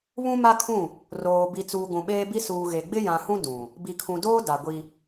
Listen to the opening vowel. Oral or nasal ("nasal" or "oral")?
nasal